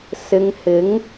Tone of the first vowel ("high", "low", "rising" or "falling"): low